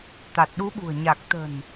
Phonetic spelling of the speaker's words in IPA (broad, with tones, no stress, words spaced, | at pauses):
t̪a˨˩t̚ɗu˨˦ɓṳ˨˩ə̯ ɲa˨˩k̚ t̪ə̤˨˩n